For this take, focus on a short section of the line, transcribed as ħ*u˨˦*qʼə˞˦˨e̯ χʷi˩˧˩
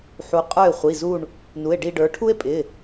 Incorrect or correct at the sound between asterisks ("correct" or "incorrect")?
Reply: correct